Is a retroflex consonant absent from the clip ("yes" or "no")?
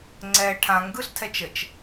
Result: no